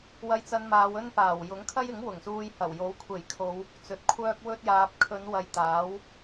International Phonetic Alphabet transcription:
w ɐ˧ j t͡s ɐ˧ n m aː˨˧ w ɵ˥ n p aː˨˩ w j ʊ˨˥ ŋ kʰ ɐ˥ j ɪ˨˥ ŋ w ʊ˨˩ ŋ s uː˧ j h ɐ˨˩ w j o˨˥ w kʷʰ e˨˩ j kʰ o˨˧ w | t͡s ɵ˨ t̚ kʷʰ œː˥ k̚ w ɵ˥ t̚ j aː˧ p̚ kʰ ɵ˨˧ n w ɐ˨ j t̪ aː˨˥ w

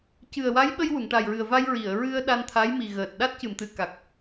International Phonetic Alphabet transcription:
c ɨ˨˩ ə̯ w a˧˥ j ɓ ə˧ j w u˨˩˨ ŋ ʈ a˨˩ j ɹ ɨ˨˩ ə̯ v a˧ j ɹ i˨˩˨ ə̯ ɹ ɨ˧ ə̯ ɗ a˧ n t̪ʰ a˧˥ j m i˨˩ ɣ əː˨˩ t̚ ɗ a˦˥ t̚ c ɨ˨˩˨ m t̪ ɨ˨˩˨ k a˨˩ k̚

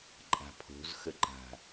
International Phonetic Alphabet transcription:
ǃʼ a̤ pʰ o̤ z x ə ǃ a̤

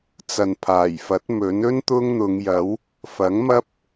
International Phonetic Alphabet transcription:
t͡s ɐ˨ n pʰ aː˨˩ j f ɐ˨˥ t̚ m ɵ˨˥ n ɵ˥ n t̪ ʊ˥ ŋ n̪ ʊ˨˧ ŋ j ɐ˨˥ w | f ɐ˨˥ ŋ m ɐ˥ p̚

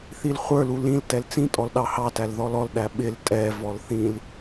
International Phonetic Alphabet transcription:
θ i l χʷ ə˞ l u l ĩ l t ɛ l t͡s ĩ tʼ ɔ l ɗ ɑ h ɑ t æ l ð ɔ l ɔ l ɗ æ ɓ ɪ l tʼ ɛ v ɔ l θ ĩ l

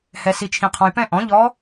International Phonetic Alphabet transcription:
h ɛ˨ s i˨ t͡ʃʰ ĩ˨ qʰ ɔ̃˨ j p ɛ̃˦˨ ʔ ɔ̃˩˥ ʎ ɔ˧˥

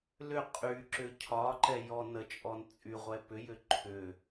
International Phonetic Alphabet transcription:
l ʏ qʼ y ǁ ʏ cʰ ɒ ǃ ɛ j ɔ n ə t͡ʃʼ ɔ n t͡sʼ y ʁʷ ɛ p ʏ j ʏ ǃʰ ʏ

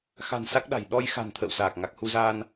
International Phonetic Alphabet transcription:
x a̤˨˩ n s a˦˥ k̚ ɗ a̤˨˩ j ɗ ɔ˧ j x a̤˨˩ n t̪ʰ ə̰ː˧˨ w s aː˨˩ k̚ ŋ a˨˩ k̚ h u˧ z aː˧ n

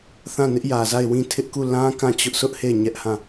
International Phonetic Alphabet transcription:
θ ã˦˨ n ɪ˦ ʔ j ä˨ z a˦˨ ɪ̯ w ĩ˦˨ tʰ ɪ˦ ʔ k u˦˨ l ã˦ k ã˦˨ t͡ɕ ʊ˦ ʔ sʰ ʊ˦ ʔ h e˦˨ ɪ̯ ɲ ɛ˦ ʔ h ã˦˨

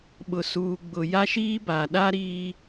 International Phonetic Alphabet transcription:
ɓ ʊ˨ s uː˨ ɡ͡b ʊ˨ j a˦ ʃ iː˦ b a˨ ɗ a˦ ɾ iː˦

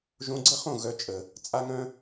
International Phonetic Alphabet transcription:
ʒ õ˧ ɡ͡ǀ ə˦ χ õ˦˨ ɣ œ˧ t͡ʃʼ ə˨ | t͡sʼ a˦ ŋ œ̃˦

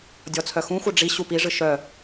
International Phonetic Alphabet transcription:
dʲ ɔ t͡sʰ œ x ũ xʷ œ ɖ͡ʐ i ɕ u p i ʐ ɨ ʃ œ

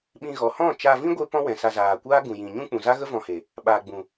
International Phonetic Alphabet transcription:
ɓ ĩ˧ ɣ ɔ˨ h ɔ̃˦˨ t͡ʃ aː˧ v ĩ˦ ɡʷ e˦ p ɔ̃˦ w ɛ̃˨ s a˧ z aː˨ kʷ aː˦ ɡ ũ˨ j ĩ˨ ɲ ũ˦ k͡p ũ˨ z a˦ ɣ ə˦ v ɔ̃˧ h e˨ | ɓ aː˨ ɡ͡b ũ˨

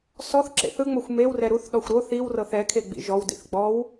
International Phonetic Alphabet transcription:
s ɔ θ ǁ ḛ θ ɯ ŋ͡m o xʷ m e w r ɛ ɾ u θ ɗ ɔ xʷ ɾ o θ i w r ɤ θ ɛ kʰ e ɡ͡b ḭ ʒ ɔ w d ḭ θ ɡ͡b ɔ w

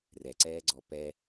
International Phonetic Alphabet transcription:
r ɛ ǀ ɛː ɡ͡ǀ ɔ p ɛ

